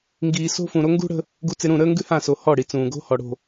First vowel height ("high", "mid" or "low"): high